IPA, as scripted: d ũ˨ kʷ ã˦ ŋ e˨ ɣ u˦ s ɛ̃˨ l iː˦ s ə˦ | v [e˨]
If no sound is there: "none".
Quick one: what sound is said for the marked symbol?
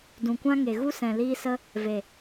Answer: e˨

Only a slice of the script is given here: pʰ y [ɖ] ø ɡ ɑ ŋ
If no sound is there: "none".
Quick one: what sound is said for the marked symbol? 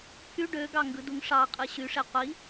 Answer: ɖ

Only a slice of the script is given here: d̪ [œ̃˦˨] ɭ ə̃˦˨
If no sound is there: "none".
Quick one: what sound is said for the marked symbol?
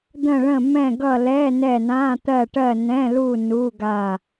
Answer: ə̃˦˨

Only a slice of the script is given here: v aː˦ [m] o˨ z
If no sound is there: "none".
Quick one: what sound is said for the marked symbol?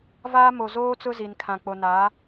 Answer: m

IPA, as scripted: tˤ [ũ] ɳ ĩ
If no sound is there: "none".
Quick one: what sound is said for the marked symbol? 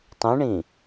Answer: ũ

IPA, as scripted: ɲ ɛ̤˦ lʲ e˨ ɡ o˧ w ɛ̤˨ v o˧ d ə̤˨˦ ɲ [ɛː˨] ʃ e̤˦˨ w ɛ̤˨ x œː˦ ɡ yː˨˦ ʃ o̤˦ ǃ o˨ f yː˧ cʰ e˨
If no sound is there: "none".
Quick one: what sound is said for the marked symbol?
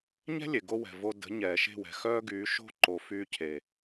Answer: ɛː˨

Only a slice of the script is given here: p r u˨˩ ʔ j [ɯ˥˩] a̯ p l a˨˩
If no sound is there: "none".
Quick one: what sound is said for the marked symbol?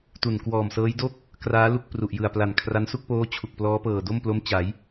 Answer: ɯ˨˩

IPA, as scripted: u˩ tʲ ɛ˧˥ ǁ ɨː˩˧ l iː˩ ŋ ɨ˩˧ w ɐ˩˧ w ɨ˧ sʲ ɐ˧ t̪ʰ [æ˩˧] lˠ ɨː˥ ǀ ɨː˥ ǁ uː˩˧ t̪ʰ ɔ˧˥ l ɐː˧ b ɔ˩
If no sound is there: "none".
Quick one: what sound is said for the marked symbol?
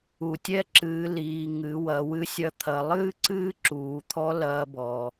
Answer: ɐ˩˧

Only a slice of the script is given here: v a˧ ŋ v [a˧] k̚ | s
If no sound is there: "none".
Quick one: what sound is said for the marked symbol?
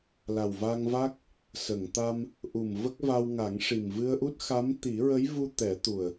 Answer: a˦˥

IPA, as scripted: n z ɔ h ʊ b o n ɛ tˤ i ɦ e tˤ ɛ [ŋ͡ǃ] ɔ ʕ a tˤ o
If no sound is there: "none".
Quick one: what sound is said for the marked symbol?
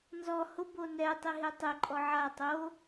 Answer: ǃʼ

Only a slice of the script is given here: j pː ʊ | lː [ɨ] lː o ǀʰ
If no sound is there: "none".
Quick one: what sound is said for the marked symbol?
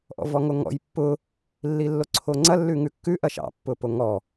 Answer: i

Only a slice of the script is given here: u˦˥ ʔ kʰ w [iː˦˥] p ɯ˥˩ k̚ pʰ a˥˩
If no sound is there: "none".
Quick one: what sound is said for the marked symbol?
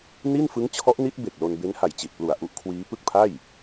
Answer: iː˦˥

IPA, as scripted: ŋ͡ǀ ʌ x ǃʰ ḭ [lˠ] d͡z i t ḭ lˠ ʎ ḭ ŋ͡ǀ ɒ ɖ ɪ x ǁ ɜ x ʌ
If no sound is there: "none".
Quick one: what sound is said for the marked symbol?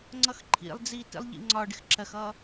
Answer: lˠ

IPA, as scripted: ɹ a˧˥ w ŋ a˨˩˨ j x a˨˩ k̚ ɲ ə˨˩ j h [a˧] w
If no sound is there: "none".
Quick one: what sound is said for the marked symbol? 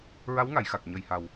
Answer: a˨˩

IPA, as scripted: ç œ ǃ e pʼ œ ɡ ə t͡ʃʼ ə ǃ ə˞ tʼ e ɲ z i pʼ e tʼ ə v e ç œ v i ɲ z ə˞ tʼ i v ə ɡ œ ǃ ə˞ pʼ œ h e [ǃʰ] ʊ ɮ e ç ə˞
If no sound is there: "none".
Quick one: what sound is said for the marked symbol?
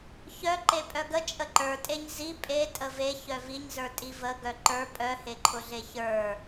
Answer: ǃʰ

